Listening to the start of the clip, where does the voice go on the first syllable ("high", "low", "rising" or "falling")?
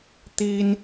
high